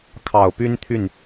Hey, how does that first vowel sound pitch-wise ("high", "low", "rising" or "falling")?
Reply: low